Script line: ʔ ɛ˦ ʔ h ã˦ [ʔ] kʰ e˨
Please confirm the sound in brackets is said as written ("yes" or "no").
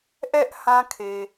no